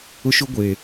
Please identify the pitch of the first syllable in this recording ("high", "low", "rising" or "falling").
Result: high